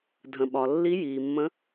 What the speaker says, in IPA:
dʱ ə̃˩ ɓ ɒ˩ lː i˧˥ j iː˩ mː ə̃˧˥

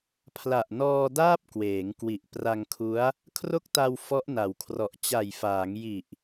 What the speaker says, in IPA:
pʰ l a˨˩ ʔ n ɔː˧ d aː˥˩ p̚ k w eː˩˦ ŋ k w i˨˩ ʔ p r a˧ ŋ kʰ u˦˥ a̯ | kʰ r o˥˩ k̚ t a˧ w f ɔ˦˥ ʔ n a˩˦ w kʰ r ɔ˨˩ ʔ t͡ɕ a˨˩ j f aː˩˦ ŋ j i˨˩ ʔ

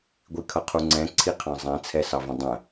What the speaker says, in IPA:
ɡʷ i kʰ ʌ qʰ u ŋ͡ǀ ɛ̃ ǀʰ i qʰ ɑ̃ zˤ ɛ̃ t͡sʰ ɛ s ɑ v ə̃ dˤ ɛ̃

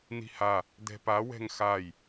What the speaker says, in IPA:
n i̤ h a | d ɛ̤ p a w ɛ̤ ŋ x a j

